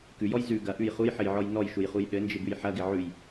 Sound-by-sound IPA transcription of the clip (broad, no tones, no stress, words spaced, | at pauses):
kʉjɔj zʉ ɡɐʔʉj χujħɘjʕɔj nɔjʃujχuj ɗɘnd͡ʒɪbʉj ħɐɡɪ ʕʉj